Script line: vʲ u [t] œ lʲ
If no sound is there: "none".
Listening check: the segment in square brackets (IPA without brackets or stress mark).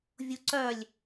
ǀ